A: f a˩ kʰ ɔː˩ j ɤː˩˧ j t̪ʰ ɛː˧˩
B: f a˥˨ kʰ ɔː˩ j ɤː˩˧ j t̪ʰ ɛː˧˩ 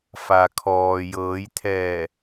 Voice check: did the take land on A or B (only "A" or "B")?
A